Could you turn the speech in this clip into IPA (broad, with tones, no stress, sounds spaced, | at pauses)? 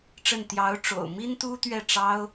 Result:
ʈ͡ʂ ə˥˩ n t̪ j ɑ˧˥ ʊ̯ ʈ͡ʂ o̰˨˩ ʊ̯ m i˥ n t̪ u˥ t̪ ɥ ɛ˥˩ ʈ͡ʂ ɑ˥ ʊ̯